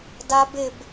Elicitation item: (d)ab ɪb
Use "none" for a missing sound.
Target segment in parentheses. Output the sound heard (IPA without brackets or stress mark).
d